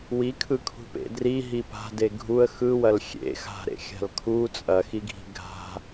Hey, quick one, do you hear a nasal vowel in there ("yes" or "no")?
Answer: no